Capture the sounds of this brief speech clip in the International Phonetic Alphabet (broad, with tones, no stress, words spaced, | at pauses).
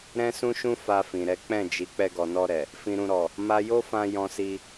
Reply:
ɾɛ̃˦sũ˦ʃũ˦ fa˧fĩ˨ɾɛ˨˦ k͡pɛ̃˦˨d͡ʒi˨˦ k͡pɛ˧ɡɔ˨nɔ˧ɾɛ˨ | fĩ˨ɾũ˨ ɾɔ˨ | ma˧ jo˦fã˧ jɔ̃˧si˧